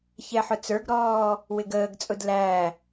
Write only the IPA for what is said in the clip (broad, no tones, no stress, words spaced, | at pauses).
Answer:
çɛħʊt͡sə˞ɡɾɔː | wɪɡəːɡt͡sʼʊd læ